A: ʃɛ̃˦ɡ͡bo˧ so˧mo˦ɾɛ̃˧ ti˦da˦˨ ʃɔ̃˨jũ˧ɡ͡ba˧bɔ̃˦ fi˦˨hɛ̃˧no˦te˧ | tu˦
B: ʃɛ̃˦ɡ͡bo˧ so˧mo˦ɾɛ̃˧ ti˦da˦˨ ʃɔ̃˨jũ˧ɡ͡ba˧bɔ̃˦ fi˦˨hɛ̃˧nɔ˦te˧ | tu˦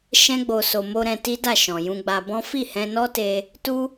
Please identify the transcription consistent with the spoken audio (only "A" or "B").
B